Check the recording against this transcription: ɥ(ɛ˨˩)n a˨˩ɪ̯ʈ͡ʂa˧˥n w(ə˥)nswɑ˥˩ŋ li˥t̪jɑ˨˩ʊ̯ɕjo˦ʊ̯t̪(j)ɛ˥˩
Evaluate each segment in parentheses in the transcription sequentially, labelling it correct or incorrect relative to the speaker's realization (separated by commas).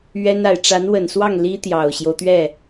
incorrect, incorrect, incorrect